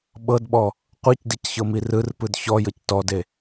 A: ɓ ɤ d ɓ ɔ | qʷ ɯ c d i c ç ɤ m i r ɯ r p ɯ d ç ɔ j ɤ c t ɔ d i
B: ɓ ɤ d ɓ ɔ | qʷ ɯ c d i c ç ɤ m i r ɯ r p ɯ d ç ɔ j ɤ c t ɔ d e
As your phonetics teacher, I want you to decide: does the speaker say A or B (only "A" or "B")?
B